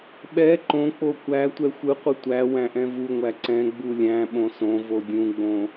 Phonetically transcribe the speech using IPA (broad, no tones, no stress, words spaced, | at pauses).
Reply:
ɓɛ ǃõk͡po kʷæ tʷɛxʷɯqʷɯ tʷæ wæ̃ʔɛ̃vuŋʷæ ǀɛ̃ ɡ͡bulʲæ̃ɓõ sõ vodʲũɡ͡bõ